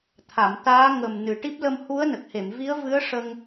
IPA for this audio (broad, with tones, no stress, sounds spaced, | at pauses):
t̪ʰ a˨˩˨ m t̪ aː˧˥ ŋ ə˨˩ m n ɨ˨˩ ʈ i˦˥ p̚ l ə˧ m h u˧˥ ə̯ n ə˨˩ k̚ h e˨˩˨ m v i˧˥ ə̯ v ɨ˧˥ ə̯ ʂ ə˧ ŋ